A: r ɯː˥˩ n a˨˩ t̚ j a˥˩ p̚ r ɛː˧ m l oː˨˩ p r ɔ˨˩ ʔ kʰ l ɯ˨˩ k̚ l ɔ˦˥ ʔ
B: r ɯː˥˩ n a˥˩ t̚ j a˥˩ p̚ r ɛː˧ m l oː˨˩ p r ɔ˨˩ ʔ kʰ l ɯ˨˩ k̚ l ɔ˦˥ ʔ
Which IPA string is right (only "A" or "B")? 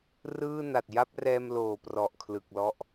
A